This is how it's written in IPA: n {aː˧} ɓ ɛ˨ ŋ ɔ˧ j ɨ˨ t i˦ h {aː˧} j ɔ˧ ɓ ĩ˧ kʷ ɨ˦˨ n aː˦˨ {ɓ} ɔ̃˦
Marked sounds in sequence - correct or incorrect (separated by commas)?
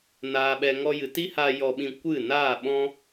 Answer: incorrect, correct, correct